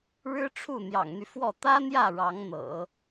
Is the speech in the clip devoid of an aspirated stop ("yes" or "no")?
no